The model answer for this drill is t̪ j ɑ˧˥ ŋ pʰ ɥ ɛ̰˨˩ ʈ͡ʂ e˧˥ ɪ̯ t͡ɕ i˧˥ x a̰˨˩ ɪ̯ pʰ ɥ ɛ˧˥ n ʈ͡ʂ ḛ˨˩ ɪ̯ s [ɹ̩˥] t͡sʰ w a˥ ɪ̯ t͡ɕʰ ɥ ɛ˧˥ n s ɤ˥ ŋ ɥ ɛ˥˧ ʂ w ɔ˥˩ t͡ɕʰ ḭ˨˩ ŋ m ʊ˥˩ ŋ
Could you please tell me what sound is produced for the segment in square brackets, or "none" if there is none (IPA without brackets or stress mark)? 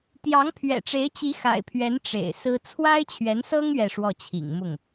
ɹ̩˥